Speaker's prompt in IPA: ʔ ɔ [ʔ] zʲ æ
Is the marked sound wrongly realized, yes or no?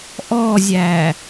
yes